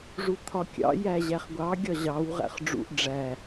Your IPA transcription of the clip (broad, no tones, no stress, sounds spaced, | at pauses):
ʐ u t̪ʰ ɒ kʲ ɑ̰ j æ ʑ æ χ ɡʷ ɑ ɡʲ ɒ ʑ ɑ w ʁ æ̰ χ ɖ͡ʐ ṵ ʔ ɖ͡ʐ æ